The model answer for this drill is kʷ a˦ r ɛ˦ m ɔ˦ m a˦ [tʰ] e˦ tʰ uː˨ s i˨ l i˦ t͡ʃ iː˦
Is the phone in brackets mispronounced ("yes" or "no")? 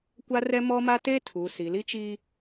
yes